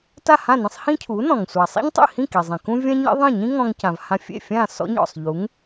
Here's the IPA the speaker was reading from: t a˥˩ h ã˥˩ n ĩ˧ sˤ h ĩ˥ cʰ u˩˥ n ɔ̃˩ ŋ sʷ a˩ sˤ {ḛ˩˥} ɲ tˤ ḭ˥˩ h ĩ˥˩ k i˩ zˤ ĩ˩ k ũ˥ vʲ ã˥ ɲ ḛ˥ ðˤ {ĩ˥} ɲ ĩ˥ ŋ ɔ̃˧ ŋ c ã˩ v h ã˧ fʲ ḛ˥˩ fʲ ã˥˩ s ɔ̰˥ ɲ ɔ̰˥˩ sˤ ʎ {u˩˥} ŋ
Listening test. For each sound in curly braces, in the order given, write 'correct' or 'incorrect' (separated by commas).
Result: incorrect, incorrect, correct